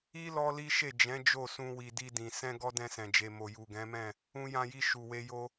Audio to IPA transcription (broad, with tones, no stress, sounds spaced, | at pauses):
i˦ l ɔ˦ l i˦ ʃ e˦˨ d͡ʒ ɛ̃˨˦ d͡ʒ o˦˨ s ũ˧ w i˨ d i˧ d ĩ˨ s ɛ̃˧ ɡ ɔ˧ d ɛ̃˧ s ɛ̃˨ d͡ʒ e˨ m o˨ j u˨ ɡ ɛ̃˨˦ m ɛ̃˦˨ | ũ˧ j ã˧ j i˧ ʃ u˨ w e˧ j o˧